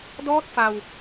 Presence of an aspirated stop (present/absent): absent